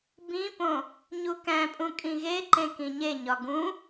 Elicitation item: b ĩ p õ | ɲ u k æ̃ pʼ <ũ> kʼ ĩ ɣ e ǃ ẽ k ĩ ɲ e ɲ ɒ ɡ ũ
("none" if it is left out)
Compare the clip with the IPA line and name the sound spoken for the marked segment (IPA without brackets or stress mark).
ũ